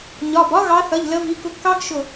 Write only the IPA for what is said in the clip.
ɲɒ˩˧˩b ɒ˦˥ɣɑ˨˦θʌ˩˧˩ʎ lə˨˦vi˩˧˩kʊ˨˦ɡkɑ˦˥ɡ ʃʊ˧˩

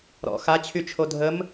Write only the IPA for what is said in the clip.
ɾɔ̰ xat͡ɕʰyt͡ʃʰo dʱəm

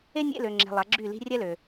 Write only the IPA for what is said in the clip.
e˥ nʲḛ˧˥˧lø˨ŋ͡ǁe̤˨ lˠa˨˥ɡ͡ǁy˥˨li̤˥ rʲɛ˥lø˨

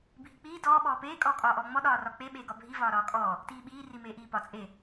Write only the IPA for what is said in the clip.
bʱik͡piː dɔː ɓɔːpeː kʼɔːkʼɒːʔɔːŋ͡mɔ ɗɒːrɒk͡pe ɓeːɡɒbʱi vɒːɾɒːkʼɔː | tiːɓiː rimeːʔiːpɒ t͡sʼe

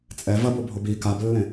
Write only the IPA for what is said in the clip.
t͡sʼɛ vɐbobʱob i kablːẽ

